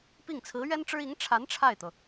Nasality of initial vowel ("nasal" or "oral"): oral